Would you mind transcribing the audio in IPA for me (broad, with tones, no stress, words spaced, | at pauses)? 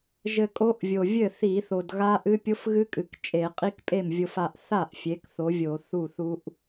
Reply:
ʒɘ˧kʼo˦˥ʔvʲo˨˩ vʲɘ˥˩ θi˧˩˧ θo˨˩dɣa˦˥ʔɨ˦˥ pʲo˦˥fɣɨ˦˥kʼɨ˨˩k t͡ʃʼe˧˩˧ qʼi˦˥kpʼe˥˩mvʲo˧f a˧ʔθa˥˩ʔ fʲe˨˥kθo˨˥vʲo˧˩˧ θu˥˩θu˦˥ʔ